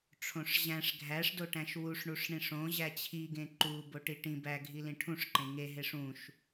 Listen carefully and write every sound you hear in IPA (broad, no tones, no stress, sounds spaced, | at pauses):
ʈ͡ʂʰ õ ʂ ʑ æ̃ ʂ ɡʱ æ ʂ d o ʈ æ̃ ʃ w u ʂ ɳ u ʂ ɳ ĩ ʂ õ ʑ æ t͡ɕʰ i ɡ ẽ ǃ u b o ʈ i ʈ ĩ b æ ɡʱ i l ĩ ʈʰ ũ ʂ ǃ ẽ ŋ e ɦ e ʂ ũ ʃ